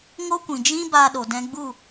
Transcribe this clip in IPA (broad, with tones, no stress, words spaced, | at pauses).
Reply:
ŋo˦kʷĩ˨d͡ʒĩ˦ ba˧ɗo˨dɛ̃˧ ɡ͡bu˦˨